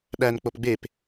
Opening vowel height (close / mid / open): open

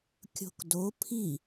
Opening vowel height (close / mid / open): mid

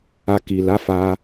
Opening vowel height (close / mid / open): open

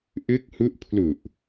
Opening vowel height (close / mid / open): close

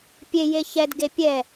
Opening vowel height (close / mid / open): mid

